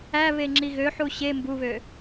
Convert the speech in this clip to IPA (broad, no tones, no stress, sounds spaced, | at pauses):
æ β e ŋ͡ǁ i ɣ ø ħ u ɕ e m b u β ø